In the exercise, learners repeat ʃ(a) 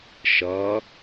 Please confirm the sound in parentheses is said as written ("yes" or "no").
no